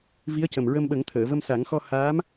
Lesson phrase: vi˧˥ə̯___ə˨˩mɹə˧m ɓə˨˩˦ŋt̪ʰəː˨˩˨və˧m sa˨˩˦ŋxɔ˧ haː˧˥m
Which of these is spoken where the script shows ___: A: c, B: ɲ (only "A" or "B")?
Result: A